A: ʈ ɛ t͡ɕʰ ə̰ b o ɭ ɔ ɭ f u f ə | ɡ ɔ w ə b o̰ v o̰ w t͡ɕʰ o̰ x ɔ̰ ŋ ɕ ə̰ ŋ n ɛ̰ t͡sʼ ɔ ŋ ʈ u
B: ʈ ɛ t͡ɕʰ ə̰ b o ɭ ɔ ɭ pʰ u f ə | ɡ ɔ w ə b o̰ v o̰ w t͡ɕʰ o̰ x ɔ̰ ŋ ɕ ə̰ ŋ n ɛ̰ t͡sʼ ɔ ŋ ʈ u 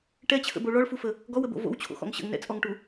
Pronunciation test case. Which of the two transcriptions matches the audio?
A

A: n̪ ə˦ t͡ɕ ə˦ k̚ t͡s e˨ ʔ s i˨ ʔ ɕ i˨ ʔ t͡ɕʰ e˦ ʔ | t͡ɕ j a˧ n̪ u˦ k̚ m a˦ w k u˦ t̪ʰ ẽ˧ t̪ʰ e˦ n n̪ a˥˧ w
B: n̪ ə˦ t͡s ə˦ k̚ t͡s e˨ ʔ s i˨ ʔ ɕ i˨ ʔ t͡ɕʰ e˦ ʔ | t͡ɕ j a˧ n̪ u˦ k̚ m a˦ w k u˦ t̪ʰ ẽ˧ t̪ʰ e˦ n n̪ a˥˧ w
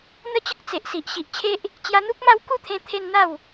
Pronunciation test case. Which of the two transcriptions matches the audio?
A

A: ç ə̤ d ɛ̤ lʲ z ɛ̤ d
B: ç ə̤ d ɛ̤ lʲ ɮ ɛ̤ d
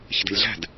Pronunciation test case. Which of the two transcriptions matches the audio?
B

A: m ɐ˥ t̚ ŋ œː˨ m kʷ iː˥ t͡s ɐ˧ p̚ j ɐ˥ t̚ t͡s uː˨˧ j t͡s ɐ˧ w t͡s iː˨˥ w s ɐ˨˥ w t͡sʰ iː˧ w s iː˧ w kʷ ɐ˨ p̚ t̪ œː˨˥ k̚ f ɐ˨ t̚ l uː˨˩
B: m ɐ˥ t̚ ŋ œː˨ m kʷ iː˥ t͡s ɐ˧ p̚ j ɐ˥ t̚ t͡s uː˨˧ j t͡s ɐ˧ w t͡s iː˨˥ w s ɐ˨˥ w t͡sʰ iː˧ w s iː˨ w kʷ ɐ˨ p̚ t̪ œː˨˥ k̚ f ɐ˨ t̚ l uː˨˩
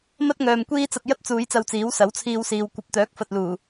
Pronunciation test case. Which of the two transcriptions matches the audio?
B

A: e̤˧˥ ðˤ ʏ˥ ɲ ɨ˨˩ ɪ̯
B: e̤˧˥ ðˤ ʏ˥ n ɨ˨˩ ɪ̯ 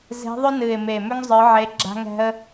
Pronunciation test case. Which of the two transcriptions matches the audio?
B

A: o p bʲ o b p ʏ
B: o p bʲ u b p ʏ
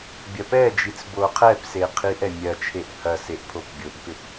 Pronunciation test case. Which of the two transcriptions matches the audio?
A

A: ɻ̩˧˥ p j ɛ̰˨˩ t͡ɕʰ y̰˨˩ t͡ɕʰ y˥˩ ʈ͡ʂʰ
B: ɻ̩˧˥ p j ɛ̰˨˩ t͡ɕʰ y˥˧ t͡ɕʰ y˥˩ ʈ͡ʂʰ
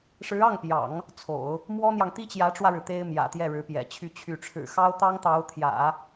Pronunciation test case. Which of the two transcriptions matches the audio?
B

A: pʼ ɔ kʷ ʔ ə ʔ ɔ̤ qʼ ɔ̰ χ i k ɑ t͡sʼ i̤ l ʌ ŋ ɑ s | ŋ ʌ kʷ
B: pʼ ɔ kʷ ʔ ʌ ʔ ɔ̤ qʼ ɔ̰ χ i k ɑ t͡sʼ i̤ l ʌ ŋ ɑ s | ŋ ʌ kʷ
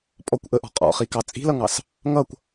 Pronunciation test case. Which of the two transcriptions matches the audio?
A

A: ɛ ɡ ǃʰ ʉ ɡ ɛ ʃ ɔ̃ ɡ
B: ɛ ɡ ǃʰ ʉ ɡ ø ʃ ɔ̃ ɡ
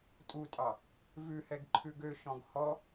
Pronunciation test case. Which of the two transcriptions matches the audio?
B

